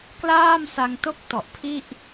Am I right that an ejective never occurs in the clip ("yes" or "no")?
yes